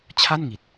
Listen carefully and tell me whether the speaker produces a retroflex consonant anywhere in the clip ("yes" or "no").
no